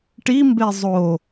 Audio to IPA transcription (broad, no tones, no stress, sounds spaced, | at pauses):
ʈ i m b e zˤ o